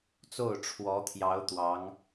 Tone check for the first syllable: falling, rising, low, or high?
falling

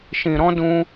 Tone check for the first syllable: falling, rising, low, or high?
low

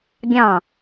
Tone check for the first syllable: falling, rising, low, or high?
falling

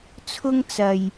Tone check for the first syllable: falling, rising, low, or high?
high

